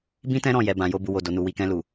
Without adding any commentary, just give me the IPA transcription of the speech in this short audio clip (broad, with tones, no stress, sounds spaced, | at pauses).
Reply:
b ĩ˦ t ɛ̃˦ ɾ ɔ̃˦˨ j ɛ˨ b ã˨ j o˧ b u˨ w o˨ d o˨ n u˨ w i˨ k ɛ̃˧ l u˨